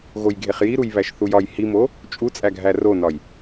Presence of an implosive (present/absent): absent